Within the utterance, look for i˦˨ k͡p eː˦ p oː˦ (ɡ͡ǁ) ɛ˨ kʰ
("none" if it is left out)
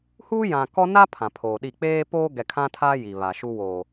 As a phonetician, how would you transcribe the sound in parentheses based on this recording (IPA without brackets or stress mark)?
ɡ